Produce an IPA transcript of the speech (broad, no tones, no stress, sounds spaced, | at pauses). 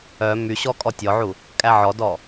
œ m y ɕ ɔ kʼ ɔ tʲ ɔ ʕ u | kʼ æ ʕ ɔ d ɔ